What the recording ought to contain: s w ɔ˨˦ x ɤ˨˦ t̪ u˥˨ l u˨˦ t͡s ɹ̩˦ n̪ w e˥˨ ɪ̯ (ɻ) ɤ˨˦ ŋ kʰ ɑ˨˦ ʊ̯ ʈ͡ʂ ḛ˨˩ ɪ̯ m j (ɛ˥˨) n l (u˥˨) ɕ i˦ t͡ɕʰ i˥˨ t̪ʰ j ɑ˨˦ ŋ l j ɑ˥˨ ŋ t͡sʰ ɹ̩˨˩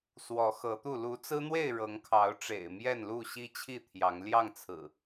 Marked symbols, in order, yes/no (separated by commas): yes, yes, yes